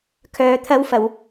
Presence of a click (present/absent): absent